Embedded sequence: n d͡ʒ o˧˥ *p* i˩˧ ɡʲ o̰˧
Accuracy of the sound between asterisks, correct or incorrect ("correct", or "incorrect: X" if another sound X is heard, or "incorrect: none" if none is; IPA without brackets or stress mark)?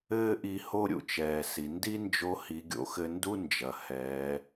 incorrect: h